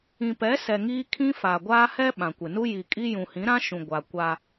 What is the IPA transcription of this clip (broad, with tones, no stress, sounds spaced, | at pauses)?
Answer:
ĩ˨ p ɛ˨˦ s ɛ˨ ŋ iː˦ kʰ ĩ˦ f a˨ ɡʷ aː˦ h ɛ˦ ɓ ã˨ kʷ ɪ˨ n u˦ j i˨ kʼ i˦ j ũ˨ h ĩ˨˦ ɾ ã˦ ʃ ũ˨ ɡʷ a˨ kʷ a˦